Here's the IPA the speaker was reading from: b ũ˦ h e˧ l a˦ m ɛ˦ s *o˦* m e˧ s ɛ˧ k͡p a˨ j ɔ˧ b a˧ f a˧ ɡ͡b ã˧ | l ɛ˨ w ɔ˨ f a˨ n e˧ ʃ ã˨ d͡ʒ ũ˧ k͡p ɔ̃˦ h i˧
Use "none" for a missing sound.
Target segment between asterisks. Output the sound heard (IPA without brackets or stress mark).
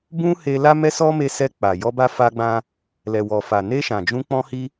ɔ˦